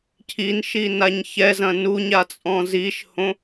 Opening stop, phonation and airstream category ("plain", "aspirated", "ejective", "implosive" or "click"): aspirated